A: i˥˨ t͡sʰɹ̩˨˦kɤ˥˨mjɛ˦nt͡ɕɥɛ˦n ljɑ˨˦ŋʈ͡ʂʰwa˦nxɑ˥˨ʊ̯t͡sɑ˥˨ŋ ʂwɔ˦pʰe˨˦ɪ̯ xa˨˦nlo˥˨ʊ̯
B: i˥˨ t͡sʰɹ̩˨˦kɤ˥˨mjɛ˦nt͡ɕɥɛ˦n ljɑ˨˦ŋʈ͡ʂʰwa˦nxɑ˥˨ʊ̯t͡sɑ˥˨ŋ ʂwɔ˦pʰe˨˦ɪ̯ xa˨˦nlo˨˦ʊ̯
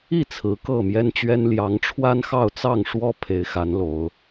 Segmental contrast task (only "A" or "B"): B